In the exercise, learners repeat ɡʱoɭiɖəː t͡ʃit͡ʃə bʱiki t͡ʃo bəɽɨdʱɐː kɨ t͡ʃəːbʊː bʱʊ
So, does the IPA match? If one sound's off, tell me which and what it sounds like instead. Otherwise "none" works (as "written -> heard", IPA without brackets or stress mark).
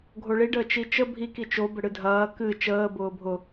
none